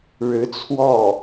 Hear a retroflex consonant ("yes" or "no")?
yes